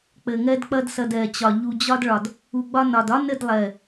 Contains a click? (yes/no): no